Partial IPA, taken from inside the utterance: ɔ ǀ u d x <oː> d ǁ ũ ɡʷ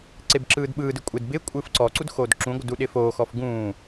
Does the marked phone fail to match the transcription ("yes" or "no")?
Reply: no